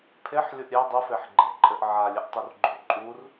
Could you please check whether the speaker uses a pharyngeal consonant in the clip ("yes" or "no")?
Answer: yes